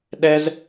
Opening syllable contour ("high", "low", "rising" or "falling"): high